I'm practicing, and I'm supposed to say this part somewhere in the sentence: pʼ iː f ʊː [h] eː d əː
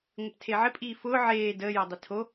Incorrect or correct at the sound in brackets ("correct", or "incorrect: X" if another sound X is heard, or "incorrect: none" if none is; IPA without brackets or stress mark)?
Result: incorrect: ʕ